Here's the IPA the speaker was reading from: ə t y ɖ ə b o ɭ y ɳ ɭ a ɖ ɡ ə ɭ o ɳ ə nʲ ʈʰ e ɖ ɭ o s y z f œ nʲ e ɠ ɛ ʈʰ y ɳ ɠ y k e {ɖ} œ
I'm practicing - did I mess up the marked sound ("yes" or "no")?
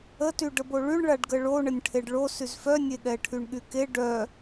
no